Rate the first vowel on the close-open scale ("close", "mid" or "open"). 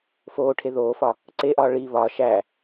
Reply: mid